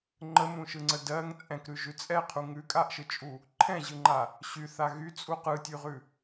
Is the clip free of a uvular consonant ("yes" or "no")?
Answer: no